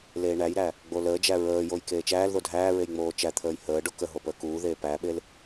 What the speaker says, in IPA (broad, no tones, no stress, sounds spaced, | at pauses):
l eː ɳ æ j ɾ æ | ɡ͡b o l əː d͡ʒ æ ɹ əː j o j k eː t͡ʃ æː l ð o dʱ æː ɹ e j ŋ͡m oː t͡ʃ æ t̪ʰ əː j h əː ɖ o k ə ɦ o p əː k uː ð eː p æ ɓ e l